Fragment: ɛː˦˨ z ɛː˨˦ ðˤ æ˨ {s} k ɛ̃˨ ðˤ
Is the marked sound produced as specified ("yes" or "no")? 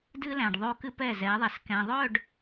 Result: yes